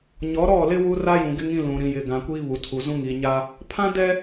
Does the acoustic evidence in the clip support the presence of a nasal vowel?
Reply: yes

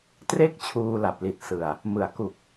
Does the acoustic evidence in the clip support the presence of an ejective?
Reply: no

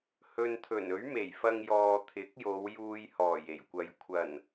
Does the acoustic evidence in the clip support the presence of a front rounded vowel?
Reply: no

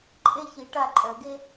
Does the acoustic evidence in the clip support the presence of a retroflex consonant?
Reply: yes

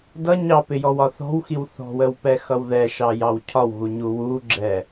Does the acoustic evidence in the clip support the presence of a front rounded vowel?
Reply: no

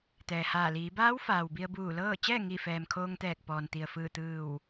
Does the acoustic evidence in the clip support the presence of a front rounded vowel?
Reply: no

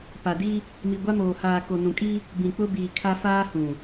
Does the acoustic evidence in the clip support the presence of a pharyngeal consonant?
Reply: no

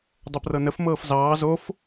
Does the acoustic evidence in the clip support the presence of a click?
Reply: no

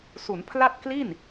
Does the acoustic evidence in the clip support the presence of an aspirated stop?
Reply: yes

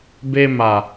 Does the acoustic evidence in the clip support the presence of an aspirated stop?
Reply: no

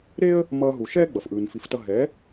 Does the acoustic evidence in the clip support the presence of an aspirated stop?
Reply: no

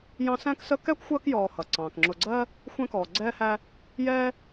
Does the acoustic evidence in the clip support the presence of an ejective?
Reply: no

